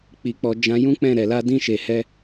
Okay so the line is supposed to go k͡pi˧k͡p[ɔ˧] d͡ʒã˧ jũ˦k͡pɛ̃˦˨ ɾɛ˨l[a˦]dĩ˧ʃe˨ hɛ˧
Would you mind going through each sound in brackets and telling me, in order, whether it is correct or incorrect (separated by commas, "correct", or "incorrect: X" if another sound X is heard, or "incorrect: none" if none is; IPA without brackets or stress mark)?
correct, incorrect: a˧